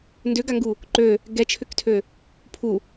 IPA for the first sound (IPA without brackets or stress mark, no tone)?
n